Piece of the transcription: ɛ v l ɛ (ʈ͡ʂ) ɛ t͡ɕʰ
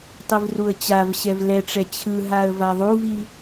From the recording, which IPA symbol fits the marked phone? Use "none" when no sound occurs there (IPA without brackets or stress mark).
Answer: ʈ͡ʂ